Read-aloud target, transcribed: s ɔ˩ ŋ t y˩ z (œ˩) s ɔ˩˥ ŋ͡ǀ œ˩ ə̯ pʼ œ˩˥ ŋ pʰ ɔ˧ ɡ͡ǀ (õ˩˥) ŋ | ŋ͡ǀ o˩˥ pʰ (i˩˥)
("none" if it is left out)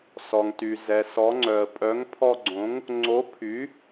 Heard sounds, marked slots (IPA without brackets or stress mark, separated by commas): ɛ˩, õ˩˥, y˩˥